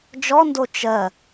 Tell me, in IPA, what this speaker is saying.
d͡ʒ ɔ n d o t͡ʃ ɜ

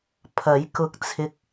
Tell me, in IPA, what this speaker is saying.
pʰ ɐ˨˥ j k ʊ˧ k̚ t͡sʰ ɪ˧ k̚

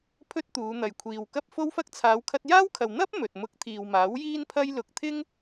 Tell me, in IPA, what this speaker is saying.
pʰ ɵ˥ t̚ t̪ uː˨˧ n̪ ɐ˨ j kʷʰ iː˨ w k ɐ˥ p̚ f o˥ w f ɐ˥ k̚ t͡sʰ aː˨˧ w kʰ ɐ˧ t̚ j aː˥ w kʰ ɐ˨ w n̪ ɐ˥ p̚ m ɵ˨ t̚ m ʊ˧ k̚ t̪ʰ iː˨ w m aː˨˥ w j iː˥ n pʰ ɐ˥ j l ʊ˧ k̚ t̪ʰ ɪ˥ ŋ

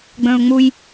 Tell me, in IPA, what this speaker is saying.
ɡ͡b ə̃ː ʊ̯ ŋ͡m u j

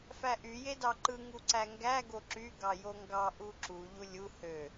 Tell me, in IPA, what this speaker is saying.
f æ ʔ y j e d ɑ ǃ ɯ ŋ u ǀ æ ŋ ɡ æ ɡ o ǁ y ɡ ɑ j o ŋ ɡ ɑ ʔ u ǁ u ʎ u lʲ u h ø

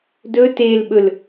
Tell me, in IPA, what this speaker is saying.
d ɵ t e l ɓ ɵ l

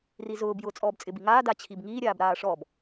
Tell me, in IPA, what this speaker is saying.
r i z ʊː b j ʊː t͡sʼ ɔː b t͡sʼ ɪ b i ŋ aː d a t͡ɕʰ i b ŋ iː ɾʲ aː b ɾ aː ʂ ɔ b

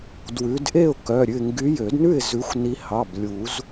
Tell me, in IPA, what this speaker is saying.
d w ʉ˨˦ d ʔ e˥˨ ʊ̯ k œ˩˧˩ ɾʲ ʉ˧˩ ɪ̯ ŋ ɡ y˨˦ j ø˨˩˦ d n ʉ˥˨ ɪ̯ z ʉ˨˦ xʷ n i˨˦ h ɑ˩˧˩ b lʲ u˨˩˦ z

